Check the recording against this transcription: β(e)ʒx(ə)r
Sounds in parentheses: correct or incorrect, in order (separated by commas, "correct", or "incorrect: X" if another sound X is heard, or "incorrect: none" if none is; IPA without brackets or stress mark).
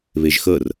correct, incorrect: əː